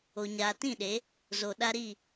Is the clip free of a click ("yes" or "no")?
yes